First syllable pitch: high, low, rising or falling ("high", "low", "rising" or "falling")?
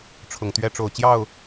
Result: low